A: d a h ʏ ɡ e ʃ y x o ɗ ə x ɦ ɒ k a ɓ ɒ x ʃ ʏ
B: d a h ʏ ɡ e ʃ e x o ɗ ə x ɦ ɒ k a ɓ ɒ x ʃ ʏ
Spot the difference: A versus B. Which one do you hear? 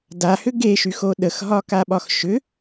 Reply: A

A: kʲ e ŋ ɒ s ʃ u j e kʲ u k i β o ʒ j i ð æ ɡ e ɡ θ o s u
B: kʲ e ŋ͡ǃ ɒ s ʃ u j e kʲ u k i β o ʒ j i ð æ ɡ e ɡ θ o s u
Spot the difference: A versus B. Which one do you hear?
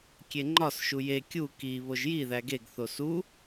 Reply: B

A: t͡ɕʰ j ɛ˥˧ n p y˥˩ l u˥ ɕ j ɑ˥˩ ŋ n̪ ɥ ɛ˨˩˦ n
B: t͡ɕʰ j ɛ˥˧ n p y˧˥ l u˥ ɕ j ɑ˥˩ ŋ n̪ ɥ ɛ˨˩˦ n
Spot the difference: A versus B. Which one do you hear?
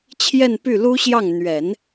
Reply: A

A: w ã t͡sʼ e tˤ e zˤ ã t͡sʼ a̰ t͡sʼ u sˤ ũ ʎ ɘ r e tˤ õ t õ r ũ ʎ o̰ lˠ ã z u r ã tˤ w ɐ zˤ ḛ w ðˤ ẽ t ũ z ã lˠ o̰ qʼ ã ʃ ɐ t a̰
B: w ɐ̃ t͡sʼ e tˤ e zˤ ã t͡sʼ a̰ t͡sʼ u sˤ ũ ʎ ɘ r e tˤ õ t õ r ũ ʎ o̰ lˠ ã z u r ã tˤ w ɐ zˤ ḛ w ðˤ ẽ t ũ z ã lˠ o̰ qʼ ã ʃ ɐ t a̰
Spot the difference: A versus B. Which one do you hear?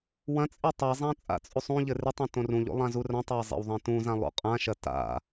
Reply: B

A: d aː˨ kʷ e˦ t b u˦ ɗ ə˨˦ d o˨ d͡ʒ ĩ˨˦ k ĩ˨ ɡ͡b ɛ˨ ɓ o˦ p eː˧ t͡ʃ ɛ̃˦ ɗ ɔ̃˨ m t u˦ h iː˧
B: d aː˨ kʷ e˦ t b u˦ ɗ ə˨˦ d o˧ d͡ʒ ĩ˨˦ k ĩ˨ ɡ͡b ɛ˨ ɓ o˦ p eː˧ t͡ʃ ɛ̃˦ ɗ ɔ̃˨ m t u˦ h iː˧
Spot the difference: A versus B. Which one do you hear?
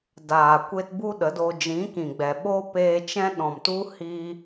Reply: B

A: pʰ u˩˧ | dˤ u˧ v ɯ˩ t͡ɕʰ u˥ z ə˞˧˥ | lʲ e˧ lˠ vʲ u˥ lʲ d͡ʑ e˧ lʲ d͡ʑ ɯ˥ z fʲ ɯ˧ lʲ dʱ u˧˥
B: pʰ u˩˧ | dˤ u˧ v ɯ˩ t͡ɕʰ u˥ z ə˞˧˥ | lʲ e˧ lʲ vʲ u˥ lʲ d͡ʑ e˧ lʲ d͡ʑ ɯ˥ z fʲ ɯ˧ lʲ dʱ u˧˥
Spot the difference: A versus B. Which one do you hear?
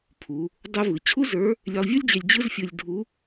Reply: A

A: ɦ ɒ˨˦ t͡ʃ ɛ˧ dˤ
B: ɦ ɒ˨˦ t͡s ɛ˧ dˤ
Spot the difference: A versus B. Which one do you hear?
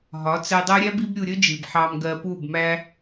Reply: B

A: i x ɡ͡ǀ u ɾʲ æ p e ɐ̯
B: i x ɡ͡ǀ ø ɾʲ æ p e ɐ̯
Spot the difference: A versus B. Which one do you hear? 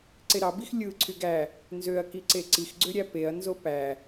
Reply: B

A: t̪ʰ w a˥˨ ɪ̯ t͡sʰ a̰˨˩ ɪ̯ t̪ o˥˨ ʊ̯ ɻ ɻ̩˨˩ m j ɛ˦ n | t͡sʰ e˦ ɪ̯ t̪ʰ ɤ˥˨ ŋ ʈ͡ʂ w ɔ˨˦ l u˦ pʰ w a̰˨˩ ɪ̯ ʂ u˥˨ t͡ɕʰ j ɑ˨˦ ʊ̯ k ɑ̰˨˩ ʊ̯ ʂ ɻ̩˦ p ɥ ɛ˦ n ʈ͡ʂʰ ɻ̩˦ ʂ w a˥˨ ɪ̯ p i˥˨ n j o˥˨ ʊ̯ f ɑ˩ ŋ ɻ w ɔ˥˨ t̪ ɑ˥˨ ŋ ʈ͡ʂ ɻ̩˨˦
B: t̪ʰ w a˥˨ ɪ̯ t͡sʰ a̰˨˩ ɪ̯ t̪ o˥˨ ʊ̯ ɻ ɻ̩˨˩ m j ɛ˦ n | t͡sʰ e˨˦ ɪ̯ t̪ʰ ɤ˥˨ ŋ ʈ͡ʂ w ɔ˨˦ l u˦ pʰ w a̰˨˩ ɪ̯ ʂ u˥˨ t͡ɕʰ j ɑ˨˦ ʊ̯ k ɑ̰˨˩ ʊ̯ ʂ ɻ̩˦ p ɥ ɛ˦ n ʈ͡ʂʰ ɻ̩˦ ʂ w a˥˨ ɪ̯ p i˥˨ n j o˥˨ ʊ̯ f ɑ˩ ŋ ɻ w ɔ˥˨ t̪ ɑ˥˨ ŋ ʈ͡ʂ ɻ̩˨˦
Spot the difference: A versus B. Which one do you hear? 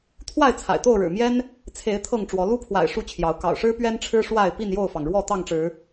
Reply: B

